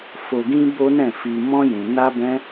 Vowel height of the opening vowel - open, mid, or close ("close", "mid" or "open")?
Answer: mid